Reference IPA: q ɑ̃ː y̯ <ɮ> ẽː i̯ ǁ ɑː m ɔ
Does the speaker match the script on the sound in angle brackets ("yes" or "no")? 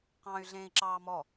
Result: yes